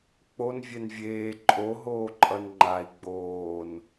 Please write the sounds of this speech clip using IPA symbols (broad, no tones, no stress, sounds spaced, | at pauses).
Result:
k͡p o n vʲ ɛ n vʲ eː ǃʼ o ɦ oː ǃʼ ʌ n ŋ͡ǃ a i̯ ɡ͡b oː n